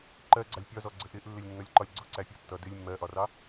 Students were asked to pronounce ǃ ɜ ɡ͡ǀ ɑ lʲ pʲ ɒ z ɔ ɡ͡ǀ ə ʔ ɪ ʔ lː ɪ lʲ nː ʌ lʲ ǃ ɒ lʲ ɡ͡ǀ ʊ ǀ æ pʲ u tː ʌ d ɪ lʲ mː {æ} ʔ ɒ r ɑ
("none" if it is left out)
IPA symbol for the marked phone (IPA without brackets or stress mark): ɜ